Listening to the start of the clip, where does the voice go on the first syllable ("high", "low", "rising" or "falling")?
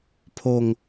falling